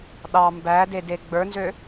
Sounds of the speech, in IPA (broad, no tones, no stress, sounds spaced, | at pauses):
ɗ ɑ m b æ d e d e ɡ͡b ə˞ n z ø